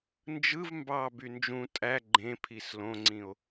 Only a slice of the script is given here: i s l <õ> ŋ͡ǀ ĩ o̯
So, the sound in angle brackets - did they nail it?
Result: yes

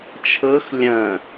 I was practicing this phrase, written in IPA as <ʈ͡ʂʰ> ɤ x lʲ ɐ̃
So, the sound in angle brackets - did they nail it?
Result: no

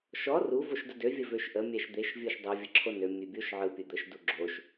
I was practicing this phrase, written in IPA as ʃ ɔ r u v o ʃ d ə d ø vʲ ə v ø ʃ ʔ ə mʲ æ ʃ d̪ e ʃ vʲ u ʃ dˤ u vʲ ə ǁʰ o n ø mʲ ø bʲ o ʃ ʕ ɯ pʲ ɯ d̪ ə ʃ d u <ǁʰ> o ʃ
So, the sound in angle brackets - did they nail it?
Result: no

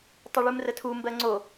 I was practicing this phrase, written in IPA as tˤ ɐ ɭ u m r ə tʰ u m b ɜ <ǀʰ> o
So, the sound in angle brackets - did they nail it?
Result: no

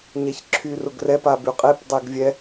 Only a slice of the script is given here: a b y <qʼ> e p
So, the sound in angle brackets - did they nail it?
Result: yes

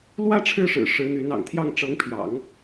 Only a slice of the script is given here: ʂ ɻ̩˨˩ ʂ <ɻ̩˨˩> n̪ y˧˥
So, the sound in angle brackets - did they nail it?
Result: no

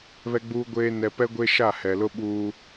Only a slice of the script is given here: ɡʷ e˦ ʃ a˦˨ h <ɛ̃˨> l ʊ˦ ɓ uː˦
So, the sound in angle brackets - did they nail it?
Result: no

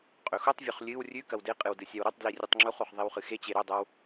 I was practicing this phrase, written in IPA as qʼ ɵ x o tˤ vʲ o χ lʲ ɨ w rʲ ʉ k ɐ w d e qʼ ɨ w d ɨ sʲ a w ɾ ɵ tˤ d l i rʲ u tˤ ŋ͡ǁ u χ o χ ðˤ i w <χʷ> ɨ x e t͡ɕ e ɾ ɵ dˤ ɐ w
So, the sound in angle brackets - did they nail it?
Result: no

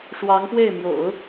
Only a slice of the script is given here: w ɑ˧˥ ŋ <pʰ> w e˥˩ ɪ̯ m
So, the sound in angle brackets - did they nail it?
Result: no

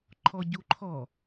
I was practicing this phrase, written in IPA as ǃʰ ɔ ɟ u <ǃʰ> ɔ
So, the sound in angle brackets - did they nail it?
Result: yes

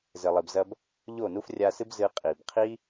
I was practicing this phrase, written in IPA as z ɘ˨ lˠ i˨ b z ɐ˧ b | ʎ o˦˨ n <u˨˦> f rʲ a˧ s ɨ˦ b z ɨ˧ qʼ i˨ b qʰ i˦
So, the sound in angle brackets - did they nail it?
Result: no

